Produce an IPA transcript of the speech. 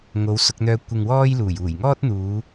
ŋ o˨˧ w s ʊ˧ k̚ n̪ œː˧ kʷ ɪ˨ ŋ w ɔː˥ j l uː˨˩ j uː˨˩ j ŋ ɔː˥ t̚ n̪ uː˨˧

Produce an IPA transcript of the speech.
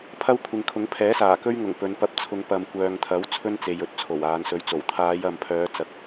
pʰ ɐ˥ w kʷʰ ɪ˨ ŋ kʰ ʊ˨˥ ŋ pʰ ɛː˨˥ s aː˨˩ k ɵ˥ ɥ ŋ ʊ˨˩ ŋ p ɵ˨˧ n p ɐ˧ p̚ t͡sʰ ʊ˨˧ ŋ p ɐ˨ m kʷ œː˨ ŋ t̪ʰ ɐ˨˥ w t͡sʰ ɵ˥ n t͡s e˨ j ɵ˨ t̚ t͡sʰ o˨˩ w aː˨˧ n s ɵ˧ ɥ t͡s o˨˩ w t̪ʰ aː˨˧ j ɐ˨ m pʰ œː˨˧ t͡s ɐ˧ k̚

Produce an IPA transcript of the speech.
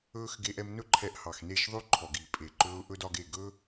ɵː˦ x ɡ e˧ ʔ ɛ˧ m n ɵ˦ ǃʰ ɛ˧ ʔ h ɑ˨ x n e˦˨ ʃ ðˤ ʉ˦ ǃʰ ɔ˨ ɡ iː˨ pʼ e˨ ǃ ɵː˧ ʊ̯ ʔ ɵ˦ d ɒ˧ ɡ e˦˨ ɡ ɵ˦

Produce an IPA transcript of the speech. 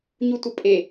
ɲ u tʷ ə pʼ e

